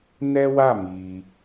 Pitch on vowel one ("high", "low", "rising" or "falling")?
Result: high